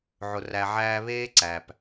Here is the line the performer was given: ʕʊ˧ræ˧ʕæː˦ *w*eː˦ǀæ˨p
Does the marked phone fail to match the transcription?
yes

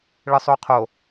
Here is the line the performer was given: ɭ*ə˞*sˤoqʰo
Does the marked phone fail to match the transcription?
yes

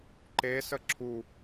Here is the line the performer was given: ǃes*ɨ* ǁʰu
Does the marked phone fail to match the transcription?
yes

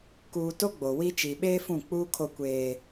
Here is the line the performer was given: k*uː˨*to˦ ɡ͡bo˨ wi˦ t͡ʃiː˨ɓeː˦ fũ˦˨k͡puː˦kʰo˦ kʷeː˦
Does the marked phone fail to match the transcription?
no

